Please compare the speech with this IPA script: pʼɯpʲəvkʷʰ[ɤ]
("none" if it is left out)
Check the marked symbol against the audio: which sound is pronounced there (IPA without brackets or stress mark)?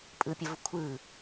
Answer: ɯ